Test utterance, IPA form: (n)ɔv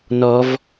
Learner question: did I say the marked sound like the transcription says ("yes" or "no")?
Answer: yes